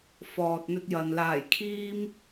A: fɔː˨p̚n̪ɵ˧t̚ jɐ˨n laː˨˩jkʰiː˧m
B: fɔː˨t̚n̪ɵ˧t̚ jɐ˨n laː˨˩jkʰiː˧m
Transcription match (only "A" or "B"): B